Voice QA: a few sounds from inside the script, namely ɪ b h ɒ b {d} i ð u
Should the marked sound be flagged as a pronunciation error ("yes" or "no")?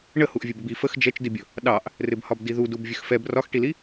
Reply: no